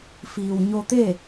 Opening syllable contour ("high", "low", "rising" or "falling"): low